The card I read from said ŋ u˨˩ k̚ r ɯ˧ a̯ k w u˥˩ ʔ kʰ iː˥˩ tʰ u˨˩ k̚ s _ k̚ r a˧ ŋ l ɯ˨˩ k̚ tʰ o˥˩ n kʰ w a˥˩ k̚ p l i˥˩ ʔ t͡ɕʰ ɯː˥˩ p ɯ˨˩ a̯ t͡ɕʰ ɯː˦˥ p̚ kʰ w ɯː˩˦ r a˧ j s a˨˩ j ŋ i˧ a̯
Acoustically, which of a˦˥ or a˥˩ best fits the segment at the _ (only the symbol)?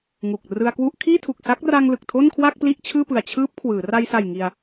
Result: a˦˥